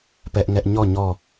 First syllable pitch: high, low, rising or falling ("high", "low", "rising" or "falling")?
high